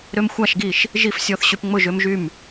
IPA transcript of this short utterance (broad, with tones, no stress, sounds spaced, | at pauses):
ɾ ø˦ m xʷ a˥˨ ʃ ɡ i˥˨ ʃ | ʒ i˥˨ f sʲ ɔ˥˨ θ ɕ y˦ p ŋ͡m ʊ˥˨ ʒ ø˦ m ʒ y˥˨ m